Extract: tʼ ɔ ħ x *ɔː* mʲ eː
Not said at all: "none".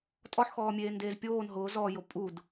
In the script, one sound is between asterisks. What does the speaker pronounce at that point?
ɔː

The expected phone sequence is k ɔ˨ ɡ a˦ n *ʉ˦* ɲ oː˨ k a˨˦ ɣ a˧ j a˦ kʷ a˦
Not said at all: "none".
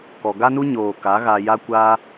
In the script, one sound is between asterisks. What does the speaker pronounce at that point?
u˦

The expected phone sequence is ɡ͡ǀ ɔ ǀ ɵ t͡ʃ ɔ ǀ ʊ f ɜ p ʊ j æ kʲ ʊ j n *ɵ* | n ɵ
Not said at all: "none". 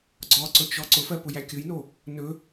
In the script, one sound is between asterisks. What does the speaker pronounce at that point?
o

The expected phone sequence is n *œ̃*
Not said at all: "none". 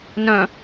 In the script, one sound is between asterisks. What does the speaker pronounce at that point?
œ̃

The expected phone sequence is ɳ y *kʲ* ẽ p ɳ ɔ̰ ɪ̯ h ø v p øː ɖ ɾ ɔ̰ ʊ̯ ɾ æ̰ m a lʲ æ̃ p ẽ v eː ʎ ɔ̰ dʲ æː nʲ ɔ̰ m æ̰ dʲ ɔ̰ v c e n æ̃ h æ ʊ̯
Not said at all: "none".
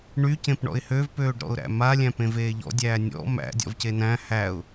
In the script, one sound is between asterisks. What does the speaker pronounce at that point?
c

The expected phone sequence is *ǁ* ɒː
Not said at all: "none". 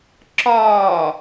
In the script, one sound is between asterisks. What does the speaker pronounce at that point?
ǁ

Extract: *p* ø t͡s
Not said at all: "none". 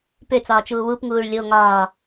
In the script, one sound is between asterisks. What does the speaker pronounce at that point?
p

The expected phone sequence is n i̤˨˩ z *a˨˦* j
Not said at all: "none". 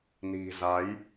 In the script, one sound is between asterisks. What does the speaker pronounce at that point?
a˨˦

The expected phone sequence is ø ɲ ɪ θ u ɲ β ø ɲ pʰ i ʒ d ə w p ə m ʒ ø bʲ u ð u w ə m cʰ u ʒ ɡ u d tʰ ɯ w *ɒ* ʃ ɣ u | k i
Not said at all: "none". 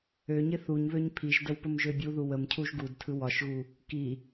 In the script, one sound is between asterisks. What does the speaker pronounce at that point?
ɒ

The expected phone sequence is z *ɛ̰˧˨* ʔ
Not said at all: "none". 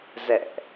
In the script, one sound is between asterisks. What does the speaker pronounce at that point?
ɛ̰˧˨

